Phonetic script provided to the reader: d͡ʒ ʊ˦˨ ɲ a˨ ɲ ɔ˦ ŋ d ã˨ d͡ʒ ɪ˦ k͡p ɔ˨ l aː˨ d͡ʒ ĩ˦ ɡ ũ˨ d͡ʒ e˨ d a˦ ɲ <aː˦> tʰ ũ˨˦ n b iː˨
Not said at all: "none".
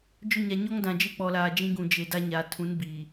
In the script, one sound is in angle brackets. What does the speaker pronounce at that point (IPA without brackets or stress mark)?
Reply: aː˨